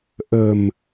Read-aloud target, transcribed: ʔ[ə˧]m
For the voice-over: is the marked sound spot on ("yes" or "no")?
no